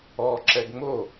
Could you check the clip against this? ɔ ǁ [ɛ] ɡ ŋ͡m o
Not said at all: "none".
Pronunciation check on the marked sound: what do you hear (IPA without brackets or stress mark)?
ɛ